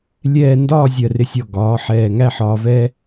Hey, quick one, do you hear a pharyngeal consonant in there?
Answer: yes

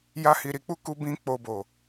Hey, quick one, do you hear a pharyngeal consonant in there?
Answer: no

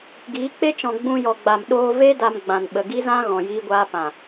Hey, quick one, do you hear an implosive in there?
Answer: yes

